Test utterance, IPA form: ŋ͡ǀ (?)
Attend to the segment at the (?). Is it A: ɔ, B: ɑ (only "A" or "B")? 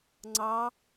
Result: B